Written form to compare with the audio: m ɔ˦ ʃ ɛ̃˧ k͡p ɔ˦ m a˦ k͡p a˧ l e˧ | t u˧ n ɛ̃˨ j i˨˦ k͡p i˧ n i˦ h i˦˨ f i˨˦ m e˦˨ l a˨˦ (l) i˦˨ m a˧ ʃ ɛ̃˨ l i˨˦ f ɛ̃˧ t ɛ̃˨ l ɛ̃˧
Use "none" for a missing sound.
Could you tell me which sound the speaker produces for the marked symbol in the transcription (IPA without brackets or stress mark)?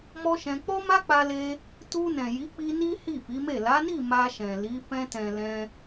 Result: n